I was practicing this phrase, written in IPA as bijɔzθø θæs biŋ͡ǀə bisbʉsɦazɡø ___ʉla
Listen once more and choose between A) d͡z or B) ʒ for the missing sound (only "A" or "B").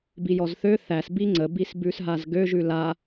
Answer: B